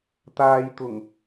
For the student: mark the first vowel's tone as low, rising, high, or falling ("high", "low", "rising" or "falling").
low